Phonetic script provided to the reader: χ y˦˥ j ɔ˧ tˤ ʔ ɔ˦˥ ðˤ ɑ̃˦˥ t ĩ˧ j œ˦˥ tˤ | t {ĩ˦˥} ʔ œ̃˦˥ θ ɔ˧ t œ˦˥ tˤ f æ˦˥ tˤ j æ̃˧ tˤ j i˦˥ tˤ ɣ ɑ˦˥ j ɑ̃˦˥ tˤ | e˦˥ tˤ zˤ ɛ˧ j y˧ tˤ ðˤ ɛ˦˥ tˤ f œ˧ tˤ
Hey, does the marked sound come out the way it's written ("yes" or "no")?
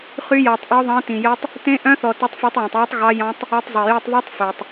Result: no